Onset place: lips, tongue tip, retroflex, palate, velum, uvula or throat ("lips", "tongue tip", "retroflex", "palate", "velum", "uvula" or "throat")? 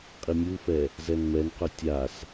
uvula